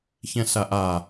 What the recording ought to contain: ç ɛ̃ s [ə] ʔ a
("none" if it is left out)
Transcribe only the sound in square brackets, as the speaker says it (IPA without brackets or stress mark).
a